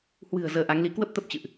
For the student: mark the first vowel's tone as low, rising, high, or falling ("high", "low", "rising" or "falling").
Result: low